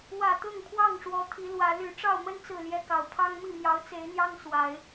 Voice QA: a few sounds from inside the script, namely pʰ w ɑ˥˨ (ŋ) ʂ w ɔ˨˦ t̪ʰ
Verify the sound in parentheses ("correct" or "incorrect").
correct